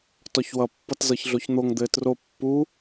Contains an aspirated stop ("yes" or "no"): no